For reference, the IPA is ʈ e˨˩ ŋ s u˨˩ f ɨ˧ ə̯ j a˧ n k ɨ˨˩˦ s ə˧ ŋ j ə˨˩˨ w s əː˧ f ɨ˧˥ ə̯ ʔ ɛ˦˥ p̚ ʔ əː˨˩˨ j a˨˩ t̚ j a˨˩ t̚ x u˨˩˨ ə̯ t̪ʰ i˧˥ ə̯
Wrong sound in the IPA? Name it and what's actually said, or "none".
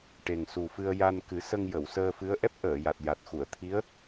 none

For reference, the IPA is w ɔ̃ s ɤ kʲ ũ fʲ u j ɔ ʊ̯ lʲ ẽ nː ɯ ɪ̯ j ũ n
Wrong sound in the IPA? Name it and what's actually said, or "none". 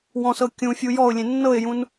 ɯ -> ɤ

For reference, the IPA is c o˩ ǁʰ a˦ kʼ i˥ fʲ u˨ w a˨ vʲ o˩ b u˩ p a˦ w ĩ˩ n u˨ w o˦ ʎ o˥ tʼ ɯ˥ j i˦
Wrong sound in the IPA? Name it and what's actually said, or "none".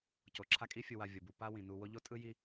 none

